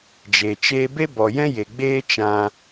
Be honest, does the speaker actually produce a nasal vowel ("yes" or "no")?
yes